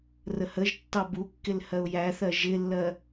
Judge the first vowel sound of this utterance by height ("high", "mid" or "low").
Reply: mid